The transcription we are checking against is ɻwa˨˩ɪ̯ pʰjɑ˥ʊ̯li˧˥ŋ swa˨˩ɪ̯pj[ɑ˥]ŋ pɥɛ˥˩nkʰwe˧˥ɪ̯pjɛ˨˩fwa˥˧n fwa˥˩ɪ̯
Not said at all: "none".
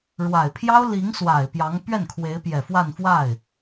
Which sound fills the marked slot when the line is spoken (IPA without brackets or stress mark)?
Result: ɑ˧˥